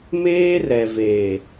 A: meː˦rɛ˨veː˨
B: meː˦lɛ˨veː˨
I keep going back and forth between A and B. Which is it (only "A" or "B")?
A